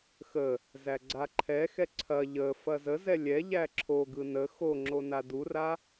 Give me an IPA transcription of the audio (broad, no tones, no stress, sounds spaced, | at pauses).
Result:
x ə | z æ ɡ͡ǀ a ǃʰ ɛ x ɛ ǀʰ ɐ ʎ ə f ɐ z ə z ɛ lʲ ɛ ʎ æ ǁʰ o ɡ ɯ n ə x o ŋ͡ǁ o n a d u r a